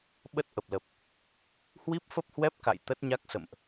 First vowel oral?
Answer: yes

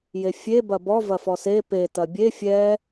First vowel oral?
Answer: yes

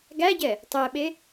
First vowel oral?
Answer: yes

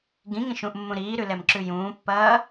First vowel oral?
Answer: no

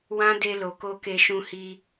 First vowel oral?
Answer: no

